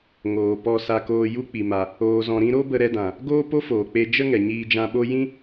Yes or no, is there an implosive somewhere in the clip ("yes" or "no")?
yes